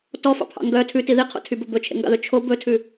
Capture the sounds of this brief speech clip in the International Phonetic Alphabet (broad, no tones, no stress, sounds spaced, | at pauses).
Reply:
t ɔ f ɑ̰ pʰ ɑ̰ ŋ ɡ œ tʰ ʉ t i ð i qʰ o̰ tʰ y b ɵ b ɵ t͡ʃʰ ḛ ŋ ɡ ɑ̰ ð ɵ t͡ʃʰ o b ɵ tʰ ʉ